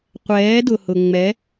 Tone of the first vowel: rising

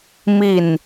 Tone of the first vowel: falling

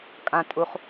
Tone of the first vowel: low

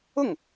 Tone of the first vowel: falling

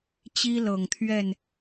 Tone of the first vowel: high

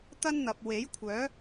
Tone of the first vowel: high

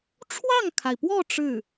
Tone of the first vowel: falling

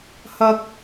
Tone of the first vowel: high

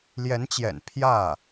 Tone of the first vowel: rising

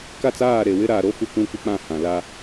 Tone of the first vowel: falling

